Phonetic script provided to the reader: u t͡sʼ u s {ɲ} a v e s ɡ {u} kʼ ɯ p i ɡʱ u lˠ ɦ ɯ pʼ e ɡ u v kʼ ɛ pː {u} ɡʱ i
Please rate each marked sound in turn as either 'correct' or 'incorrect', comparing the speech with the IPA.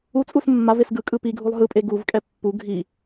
incorrect: mː, incorrect: ɯ, correct

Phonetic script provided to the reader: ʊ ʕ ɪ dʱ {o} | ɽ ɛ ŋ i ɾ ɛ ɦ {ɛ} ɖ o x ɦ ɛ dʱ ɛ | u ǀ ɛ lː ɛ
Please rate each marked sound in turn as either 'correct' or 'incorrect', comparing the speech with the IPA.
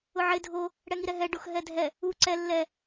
correct, correct

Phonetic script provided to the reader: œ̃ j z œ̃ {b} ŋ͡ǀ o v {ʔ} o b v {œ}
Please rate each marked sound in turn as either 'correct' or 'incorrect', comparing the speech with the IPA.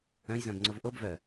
correct, correct, correct

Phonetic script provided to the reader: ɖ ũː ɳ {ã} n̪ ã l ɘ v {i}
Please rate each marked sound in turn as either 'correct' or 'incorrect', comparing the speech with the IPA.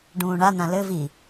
incorrect: a, correct

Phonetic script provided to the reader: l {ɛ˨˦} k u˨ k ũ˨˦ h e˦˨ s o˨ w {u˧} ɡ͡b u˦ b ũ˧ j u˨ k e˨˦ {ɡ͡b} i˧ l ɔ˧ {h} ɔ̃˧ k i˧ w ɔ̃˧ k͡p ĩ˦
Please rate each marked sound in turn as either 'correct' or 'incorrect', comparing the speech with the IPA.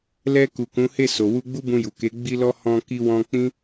incorrect: ɛ˧, correct, correct, correct

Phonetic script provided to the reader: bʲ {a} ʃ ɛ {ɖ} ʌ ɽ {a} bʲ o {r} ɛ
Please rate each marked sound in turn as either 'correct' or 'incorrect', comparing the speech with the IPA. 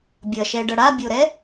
incorrect: ʌ, correct, correct, incorrect: ɾ

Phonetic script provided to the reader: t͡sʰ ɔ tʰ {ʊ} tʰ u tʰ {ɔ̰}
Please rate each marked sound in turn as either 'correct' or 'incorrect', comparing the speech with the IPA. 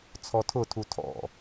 correct, correct

